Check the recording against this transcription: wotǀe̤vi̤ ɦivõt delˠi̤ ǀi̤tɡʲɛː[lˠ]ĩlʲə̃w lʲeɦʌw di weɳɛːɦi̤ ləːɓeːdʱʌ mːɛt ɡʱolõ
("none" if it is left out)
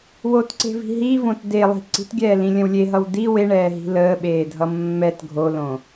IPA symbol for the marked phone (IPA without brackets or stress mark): l